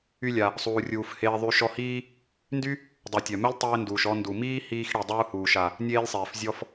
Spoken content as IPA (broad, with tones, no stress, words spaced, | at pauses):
y˧lʲa˩ | sˤuː˩rʲuː˩f heː˧ðˤy˧ ʃɔ˧hiː˥ | ndy˥ | dˤu˩tʲœ˩mœ˥lʲ tˤeː˧nduː˩ʃ ɔ˧ ndu˩ miː˥hiː˧xɽi˩ dˤuː˧huː˩ʃa˩ | nʲeː˥lʲsˤeː˩f zʲɔ˧f